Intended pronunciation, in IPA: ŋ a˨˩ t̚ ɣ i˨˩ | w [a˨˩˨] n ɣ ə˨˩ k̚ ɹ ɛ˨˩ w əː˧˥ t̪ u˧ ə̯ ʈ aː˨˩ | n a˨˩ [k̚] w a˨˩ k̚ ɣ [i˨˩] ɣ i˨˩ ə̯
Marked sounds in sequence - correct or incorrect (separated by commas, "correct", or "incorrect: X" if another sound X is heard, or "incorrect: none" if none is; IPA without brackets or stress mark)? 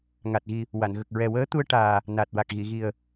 correct, incorrect: t̚, incorrect: i˨˩˨